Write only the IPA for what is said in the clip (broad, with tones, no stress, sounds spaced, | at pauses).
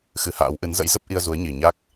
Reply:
x ɨ˧ h a̰ː˧˥ w ʔ ɨ˨˦ n z ə̰˧˥ j z ə˦˥ p̚ ʔ i˧ ə̯ z u˨˦ ə̯ ɲ i˨˩ ɲ a˦˥ k̚